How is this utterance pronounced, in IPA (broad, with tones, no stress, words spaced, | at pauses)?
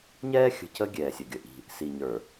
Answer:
ɲɛː˦xʲə̤˨cə˦ ɡʲɛː˨sʲʌ˨ɡʲə˨ʔi̤˦ | si˨ɲə˞˨